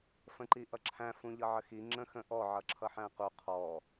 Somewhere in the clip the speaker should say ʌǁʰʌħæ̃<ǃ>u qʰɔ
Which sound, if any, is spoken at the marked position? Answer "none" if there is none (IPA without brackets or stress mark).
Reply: q